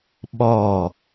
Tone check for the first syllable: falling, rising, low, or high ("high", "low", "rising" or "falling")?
falling